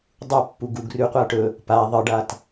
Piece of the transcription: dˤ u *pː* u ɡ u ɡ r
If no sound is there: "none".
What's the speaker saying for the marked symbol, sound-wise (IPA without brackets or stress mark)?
pː